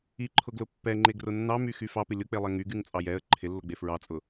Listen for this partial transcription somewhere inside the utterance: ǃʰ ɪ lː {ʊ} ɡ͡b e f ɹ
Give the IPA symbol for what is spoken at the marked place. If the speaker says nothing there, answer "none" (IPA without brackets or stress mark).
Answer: ʊ